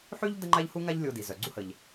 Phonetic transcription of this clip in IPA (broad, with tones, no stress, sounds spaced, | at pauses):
ħ y˥ ʎ d ə˥ ŋ͡ǃ a˥ ʎ h u˥ ŋ a˥ ʎ lʲ o˧ d i˩ z œ˩ ɡ͡ǀ u˥ h ə˩ ʎ